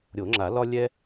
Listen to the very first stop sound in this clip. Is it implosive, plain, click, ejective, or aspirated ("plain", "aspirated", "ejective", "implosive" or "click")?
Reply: click